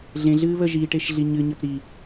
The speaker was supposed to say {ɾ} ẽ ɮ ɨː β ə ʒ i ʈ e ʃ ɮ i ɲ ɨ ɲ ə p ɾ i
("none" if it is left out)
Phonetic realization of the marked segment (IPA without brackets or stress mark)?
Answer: ɮ